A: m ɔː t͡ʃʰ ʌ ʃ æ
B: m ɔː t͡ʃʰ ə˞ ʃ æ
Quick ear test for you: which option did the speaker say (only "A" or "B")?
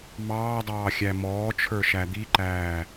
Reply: B